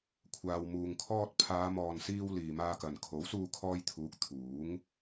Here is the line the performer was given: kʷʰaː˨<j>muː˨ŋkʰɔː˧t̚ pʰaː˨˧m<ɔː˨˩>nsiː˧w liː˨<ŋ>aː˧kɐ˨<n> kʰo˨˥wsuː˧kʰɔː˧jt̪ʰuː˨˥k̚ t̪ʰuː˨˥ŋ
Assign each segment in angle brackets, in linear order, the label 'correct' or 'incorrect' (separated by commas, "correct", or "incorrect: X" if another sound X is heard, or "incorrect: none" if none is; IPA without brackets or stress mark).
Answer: incorrect: w, incorrect: ɔː˨, incorrect: m, correct